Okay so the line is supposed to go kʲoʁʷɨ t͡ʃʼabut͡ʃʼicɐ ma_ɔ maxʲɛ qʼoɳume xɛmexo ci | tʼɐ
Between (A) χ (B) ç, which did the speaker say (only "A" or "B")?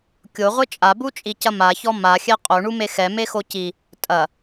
B